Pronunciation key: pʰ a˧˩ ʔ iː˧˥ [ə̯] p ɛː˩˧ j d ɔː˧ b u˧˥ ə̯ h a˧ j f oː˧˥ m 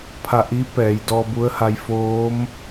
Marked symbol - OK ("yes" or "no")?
no